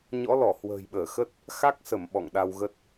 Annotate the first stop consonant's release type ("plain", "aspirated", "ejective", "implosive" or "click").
implosive